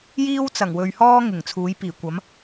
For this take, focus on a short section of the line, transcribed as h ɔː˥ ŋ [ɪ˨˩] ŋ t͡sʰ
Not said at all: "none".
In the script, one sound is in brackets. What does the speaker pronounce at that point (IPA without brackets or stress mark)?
ɪ˨˩